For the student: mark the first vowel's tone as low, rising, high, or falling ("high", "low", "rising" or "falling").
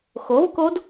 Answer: rising